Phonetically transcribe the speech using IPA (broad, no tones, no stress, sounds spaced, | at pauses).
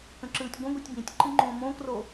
k ə̃ ǁ ɯː tʲ ɡʷ ə̃ ɡʷ i tʲ b ĩ tʲ ǃ ɨ ŋ͡ǃ õː m õː k r o